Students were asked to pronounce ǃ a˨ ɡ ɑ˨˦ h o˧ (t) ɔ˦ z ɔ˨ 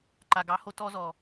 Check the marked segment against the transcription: correct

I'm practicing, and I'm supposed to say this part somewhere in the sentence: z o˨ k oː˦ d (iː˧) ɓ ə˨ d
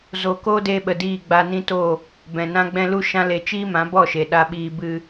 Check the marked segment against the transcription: incorrect: eː˧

